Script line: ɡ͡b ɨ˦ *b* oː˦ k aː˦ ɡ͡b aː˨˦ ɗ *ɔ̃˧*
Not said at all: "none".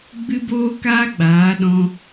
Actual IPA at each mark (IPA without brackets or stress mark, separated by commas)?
b, ɔ̃˧